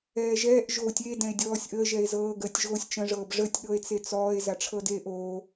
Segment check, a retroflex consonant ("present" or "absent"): present